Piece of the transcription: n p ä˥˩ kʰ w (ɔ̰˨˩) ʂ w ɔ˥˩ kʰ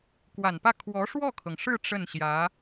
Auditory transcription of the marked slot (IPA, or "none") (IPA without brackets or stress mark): ɔ˧˥